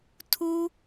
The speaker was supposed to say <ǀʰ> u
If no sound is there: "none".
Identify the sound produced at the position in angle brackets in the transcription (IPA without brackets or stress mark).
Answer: tʰ